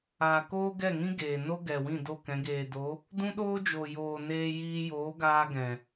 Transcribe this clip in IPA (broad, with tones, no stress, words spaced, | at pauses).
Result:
aː˨koː˦ɡɛ˦˨ŋĩ˦ ɡeː˨ no˦ɡɛ˨wĩ˦˨ do˦˨kɛ̃˨˦ ɡeː˨do˨˦ | dũ˦ɗoː˦d͡ʒo˨joː˨ neː˧jiː˧ joː˨˦ɡaː˧ ɡɛ̃˨